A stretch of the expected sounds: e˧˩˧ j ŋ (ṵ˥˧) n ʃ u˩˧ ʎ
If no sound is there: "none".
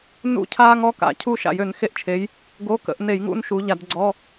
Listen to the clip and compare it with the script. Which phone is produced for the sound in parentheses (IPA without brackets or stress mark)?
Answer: ṵ˥˧